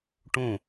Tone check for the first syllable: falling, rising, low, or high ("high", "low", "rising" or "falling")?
falling